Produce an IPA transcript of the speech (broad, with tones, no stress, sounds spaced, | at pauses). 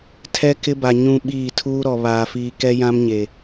tʰ ɛ˦ k ɪ˦ b a˨ ɲ ũ˦ ɓ iː˦˨ tʰ uː˦ ɾ ɔ˨ β aː˨ f iː˨ k ɛ˦ j ã˦ m ɲ e˨